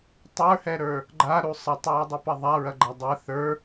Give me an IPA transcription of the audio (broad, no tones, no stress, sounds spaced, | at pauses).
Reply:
tˤ ə˞ h ɛ ɾ ə˞ | ɡ͡ǃ a ɾ u sˤ ɐ tˤ ɹ ɐ dˤ u p ɐ ðˤ a ɹ ɐ ɡ͡ǃ a dˤ ɛ θ ə˞